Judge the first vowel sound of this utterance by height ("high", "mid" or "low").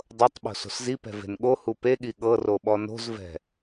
mid